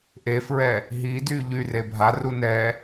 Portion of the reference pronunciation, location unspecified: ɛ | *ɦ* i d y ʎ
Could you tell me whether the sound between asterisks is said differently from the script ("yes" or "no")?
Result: no